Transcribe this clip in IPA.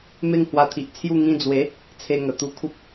m e˥˧ ŋ h w a˧ t̪ʰ i˨ ʔ t͡sʰ j u˥˧ ŋ ĩ˧ d͡z w e˨˦ | t͡sʰ e˧ ŋ ə˨˩ t̪ u˧ kʰ u˦ p̚

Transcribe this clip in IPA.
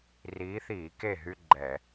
r iː˨˦ θ iː˧˩˧ k e˥˩ ɦ y˦ ɡ͡ǃ ɛ˧˩˧

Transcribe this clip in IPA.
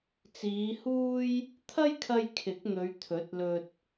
t͡s iː˨˧ h uː˥ j | t̪ʰ ɐ˥ j kʰ ɐ˧ j kʰ ɪ˨˥ k̚ n̪ ɵ˨˧ ɥ t̪ʰ ɵ˨˥ t̚ l ɵ˧ t̚

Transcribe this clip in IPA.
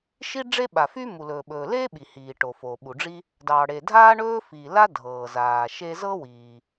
ʃ i˥ ɖ͡ʐ e˥ ɓ a˩ f y˥ m u˩ l ɵː˩ ɓ ɵː˩ l eː˥ ɓ i˩ h iː˩ ʈ o˩ f o˩ ɓ u˩ ɖ͡ʐ i˥ | d ɑː˩ ɽ e˩ dʱ aː˥ ɳ ɵː˥ f iː˩ l a˥ dʱ ɤː˩ z aː˩ ʃ e˥ z ɤː˥ w iː˩

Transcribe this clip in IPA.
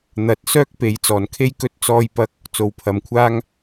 n̪ ɐ˧ t̚ s œː˥ k̚ p e˨˧ j t͡s ɔː˨˩ n kʰ e˥ j k ɵ˥ t̚ t͡s ɔː˧ j p ɐ˧ k̚ | t͡s o˨ w pʰ ɐ˨ m kʷʰ aː˥ ŋ

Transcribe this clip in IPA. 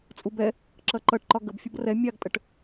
t͡sʼ u b ɛ | ǁ ʌ ǃ ʌ ʈ ǃ ɒ ɡ ə b fʲ ʌ b r ɛ mʲ ɑ ɡ tʼ ə ʈ

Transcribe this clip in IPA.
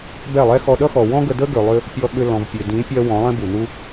b ɛ˦˨ lˠ ɛ˦ x ɔ˧ ɗ ʌ˦ x ɔ˨ w ɔ̃˦ ɡ ə˧ d ə˦ ɡ ø˧ lˠ ʏ˦ | pʲ ɔ˧ ɠ ʏ˧ l ɔ̃˨ v pʲ ø˨ d ĩ˨˦ pʲ ɜ˧ w ɔ̃˨˦ lˠ ɛ̃˦ b u˨ n u˦

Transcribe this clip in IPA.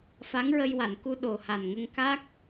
f a˧˥ ŋ ɹ ə˧ j w a˨˩˨ n k u˧ ɗ o˨˩ h a˨˩ n ŋ ə˧ ŋ k a˦˥ k̚

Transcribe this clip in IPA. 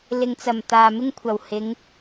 l ɪ˨ ŋ t͡s ɐ˨˩ m t̪ aː˨ m ɪ˥ ŋ kʷʰ ɐ˨˩ w h ɪ˨˧ ŋ

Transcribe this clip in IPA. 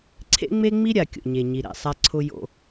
ǀʰ ḛ˦ ŋ͡m e˦ ŋ͡m i˦ ɾʲ a˨ kʲ o̰˨ ɲ e˨ ɲ i˨ ɾ ɛ̰˨ sˤ a˦ ǀʰ ʊ˦ j o̰˦

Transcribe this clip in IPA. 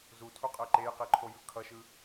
z u tʰ u qʼ ɛ ǃ e j q i ǃʰ o j ɯ kʰ ʌ ʃ ɯ

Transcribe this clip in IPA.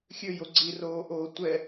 xʲ ø j o ɡ͡ǀ i r oː ʔ oː tʷ ɛ

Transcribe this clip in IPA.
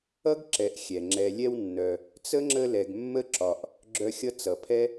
ʌ˥ ɡ ǁ ɛ˨ ʔ xʲ ɛ˩ ŋ͡ǁ ɛ˨ lʲ ɛ˦ w nː œ˨ | t͡s ə˥ ŋ͡ǁ ə˦ l ɛ˨ ɡ mː ə˥ ǁ ɒ˨ ʔ | ɡ͡ǁ œ˦ xʲ ʌ˥ t͡s ʌ˩ pʰ ɛ˥

